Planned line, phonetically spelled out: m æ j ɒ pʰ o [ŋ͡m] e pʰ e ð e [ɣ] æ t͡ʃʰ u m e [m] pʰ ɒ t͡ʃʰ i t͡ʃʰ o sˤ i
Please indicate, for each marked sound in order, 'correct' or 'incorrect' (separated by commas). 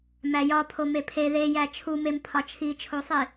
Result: incorrect, incorrect, correct